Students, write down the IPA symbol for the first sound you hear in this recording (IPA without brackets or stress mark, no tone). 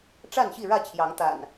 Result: ʈ͡ʂ